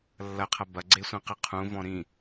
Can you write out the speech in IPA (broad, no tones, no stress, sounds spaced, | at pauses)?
lː ɐ qʰ ɐ b ɐ ɡ͡ǀ e sʷ ĩ q ɨ qʰ ũ v ɔ̃ ɾ ĩ